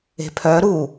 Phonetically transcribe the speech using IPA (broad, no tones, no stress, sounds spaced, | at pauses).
e̤ pʰ œ ɾ u